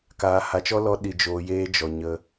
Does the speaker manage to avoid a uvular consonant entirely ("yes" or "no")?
yes